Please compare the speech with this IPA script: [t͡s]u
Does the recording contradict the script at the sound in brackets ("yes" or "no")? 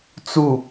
no